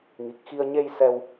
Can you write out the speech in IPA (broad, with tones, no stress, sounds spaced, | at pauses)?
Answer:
ŋ i˨˩ k̚ x i˧ ə̯ ɲ e˧ j s ɛ˧ w